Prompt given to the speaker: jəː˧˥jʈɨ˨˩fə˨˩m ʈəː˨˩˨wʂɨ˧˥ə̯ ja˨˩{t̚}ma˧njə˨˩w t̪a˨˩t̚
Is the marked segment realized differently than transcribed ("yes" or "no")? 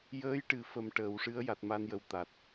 no